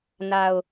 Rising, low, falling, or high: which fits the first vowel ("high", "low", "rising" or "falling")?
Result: low